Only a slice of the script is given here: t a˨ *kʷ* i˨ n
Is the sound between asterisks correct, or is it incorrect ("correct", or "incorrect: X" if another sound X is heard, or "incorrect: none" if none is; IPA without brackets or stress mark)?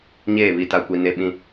correct